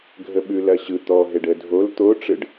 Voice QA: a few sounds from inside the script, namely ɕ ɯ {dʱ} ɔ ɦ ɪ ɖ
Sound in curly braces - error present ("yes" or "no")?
yes